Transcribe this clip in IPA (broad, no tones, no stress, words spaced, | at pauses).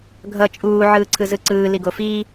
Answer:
ɡʱʌ t͡ʃʼuː ʕɯːǀʰɯzɯǀɯː liɡofiː